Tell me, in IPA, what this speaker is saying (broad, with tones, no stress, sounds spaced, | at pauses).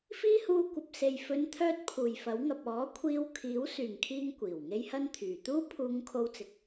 f iː˥ h uː˧ kʷ ɐ˨ p̚ s e˨ j f ɵ˨˧ n t̪ʰ œː˧ t̚ pʰ uː˨˩ j f ɐ˨˥ w ŋ ɐ˨ p̚ ɔː˨˥ kʷʰ iː˧ w kʰ iː˨˥ w s yː˨˩ ŋ kʰ iː˧ ŋ kʷ iː˨˩ w ŋ e˥ j h ɐ˥ n t̪ʰ yː˨ t̪ uː˥ pʰ uː˧ ŋ kʰ o˧ w t͡s ɪ˨ k̚